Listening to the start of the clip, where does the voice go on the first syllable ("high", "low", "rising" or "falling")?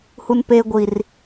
high